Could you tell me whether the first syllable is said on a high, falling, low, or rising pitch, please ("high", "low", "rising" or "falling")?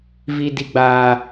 high